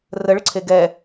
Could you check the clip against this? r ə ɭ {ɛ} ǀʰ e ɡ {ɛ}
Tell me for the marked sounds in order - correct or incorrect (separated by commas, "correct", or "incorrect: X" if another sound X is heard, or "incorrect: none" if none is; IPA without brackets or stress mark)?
incorrect: ə, correct